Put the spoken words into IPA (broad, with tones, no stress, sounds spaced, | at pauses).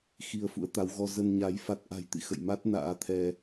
x i˧ ə̯ f ṵ˧˥ ə̯ t̪ a˨˦ w ɣ ɔ˧ z ə˧ n ɲ a˨˦ j f a˦˥ t̚ ʔ a̤˨˩ j t̪ ḭ˧˨ x ə̰˧˨ j m a˦˥ t̚ n a̰ː˧˥ t̪ʰ ɛ˧